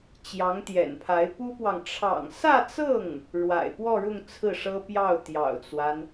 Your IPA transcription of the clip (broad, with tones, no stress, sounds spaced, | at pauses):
t͡ɕ j ɑ˧˥ ŋ t̪ j ɛ̰˨˩ n pʰ a˧˥ ɪ̯ p u˥ p w ɑ˨ ŋ ʈ͡ʂʰ ɑ̰˨˩ ŋ s ä˥˧ t͡s ɤ˥˩ ŋ | ɻ w a̰˨˩ ɪ̯ p w ɔ˥˧ ɻ ʊ˥˧ ŋ t͡sʰ ɹ̩˥˩ ʂ ɤ˥ p j ɑ˥˩ ʊ̯ t̪ j ɑ̰˨˩ ʊ̯ t͡s w a˦ n